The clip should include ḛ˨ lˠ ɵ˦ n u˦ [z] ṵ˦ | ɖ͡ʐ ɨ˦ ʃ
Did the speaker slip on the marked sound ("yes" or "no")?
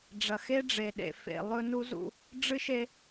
no